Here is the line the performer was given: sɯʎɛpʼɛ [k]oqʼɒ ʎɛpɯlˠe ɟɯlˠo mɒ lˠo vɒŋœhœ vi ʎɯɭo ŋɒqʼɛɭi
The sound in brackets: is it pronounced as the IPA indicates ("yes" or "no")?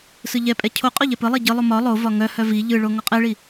no